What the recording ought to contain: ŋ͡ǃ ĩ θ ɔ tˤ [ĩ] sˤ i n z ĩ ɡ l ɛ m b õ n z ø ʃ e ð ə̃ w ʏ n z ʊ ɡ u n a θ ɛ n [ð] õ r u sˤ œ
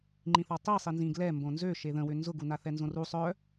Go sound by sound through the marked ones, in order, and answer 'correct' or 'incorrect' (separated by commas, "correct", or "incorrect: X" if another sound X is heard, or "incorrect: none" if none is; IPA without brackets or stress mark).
incorrect: i, incorrect: z